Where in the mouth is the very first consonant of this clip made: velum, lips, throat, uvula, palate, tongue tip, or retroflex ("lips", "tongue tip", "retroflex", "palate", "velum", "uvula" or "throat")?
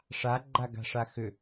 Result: retroflex